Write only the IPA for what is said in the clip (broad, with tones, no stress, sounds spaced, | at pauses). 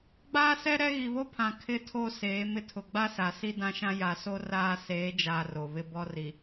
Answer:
ɡ͡b aː˦ s ɛ˦ ɾ ɛ˦ ɣ i˨ β o˦ pʰ ã˨ kʰ ɪ˦˨ tʰ o˦˨ s eː˨˦ m ɪ˦ tʰ ʊ˨ ɡ͡b a˦ s a˨ s i˦ d ã˦ ʃ ã˦ j a˨ s o˦ r aː˦ s eː˨˦ d͡ʒ aː˨ r o˨ β ɪ˦ b ɔ˦ r i˨